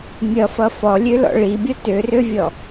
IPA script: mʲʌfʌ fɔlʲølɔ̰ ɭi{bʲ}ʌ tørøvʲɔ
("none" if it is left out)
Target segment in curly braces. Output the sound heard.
bʲ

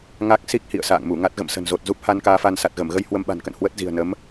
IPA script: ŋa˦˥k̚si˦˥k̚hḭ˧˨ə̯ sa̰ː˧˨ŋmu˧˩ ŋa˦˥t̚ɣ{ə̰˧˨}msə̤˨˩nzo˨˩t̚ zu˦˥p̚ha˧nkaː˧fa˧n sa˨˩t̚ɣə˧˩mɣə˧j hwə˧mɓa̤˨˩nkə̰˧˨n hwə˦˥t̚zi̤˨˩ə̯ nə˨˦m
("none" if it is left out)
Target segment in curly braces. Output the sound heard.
ə̰˧˨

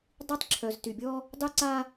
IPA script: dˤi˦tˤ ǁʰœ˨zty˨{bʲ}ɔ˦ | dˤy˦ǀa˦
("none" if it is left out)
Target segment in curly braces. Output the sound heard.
bʲ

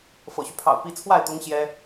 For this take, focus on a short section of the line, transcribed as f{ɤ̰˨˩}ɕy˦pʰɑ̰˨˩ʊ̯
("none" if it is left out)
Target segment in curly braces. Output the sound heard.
ɤ̰˨˩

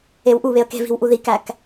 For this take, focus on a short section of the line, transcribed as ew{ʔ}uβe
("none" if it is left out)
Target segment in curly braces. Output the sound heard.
ʔ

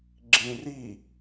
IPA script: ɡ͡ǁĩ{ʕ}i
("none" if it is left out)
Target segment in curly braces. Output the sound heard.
r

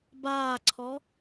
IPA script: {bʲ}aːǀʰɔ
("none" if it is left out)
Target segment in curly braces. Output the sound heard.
b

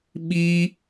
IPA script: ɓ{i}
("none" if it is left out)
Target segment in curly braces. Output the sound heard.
i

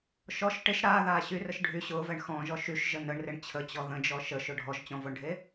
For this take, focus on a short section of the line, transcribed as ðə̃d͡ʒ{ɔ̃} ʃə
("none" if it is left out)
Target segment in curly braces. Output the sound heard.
ɔ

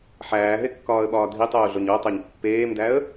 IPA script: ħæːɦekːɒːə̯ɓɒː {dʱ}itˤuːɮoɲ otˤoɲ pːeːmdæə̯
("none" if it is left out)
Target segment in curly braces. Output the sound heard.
dʱ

